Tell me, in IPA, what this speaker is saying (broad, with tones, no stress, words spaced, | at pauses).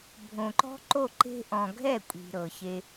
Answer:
bʱõ˨ǃɔ̤˦ǃo˦˨ ǃe̤˧ʔɔ̃˨ ɡʱɛ˦˨kʷʼi̤˨ɾɤ˨ çe˧